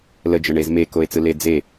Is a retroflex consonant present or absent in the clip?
present